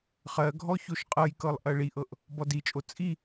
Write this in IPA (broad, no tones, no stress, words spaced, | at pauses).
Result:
χɜɡʱɔ çoʃqʼɤjkɤlˠ ʔɜɭiʔɤʔ | bɔdit͡ʃʼo t͡sʼi